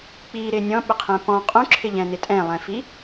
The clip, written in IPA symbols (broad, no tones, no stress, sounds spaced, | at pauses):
k͡p i ɾ ɪ nʲ ɔ̃ ɓ ɪ qʰ ɛ̃ p ɔ̃ qʼ ũ ǁʰ ɪ ʎ ɛ̃ n ɪ tʼ ɛ̃ lˠ ɛ̃ f i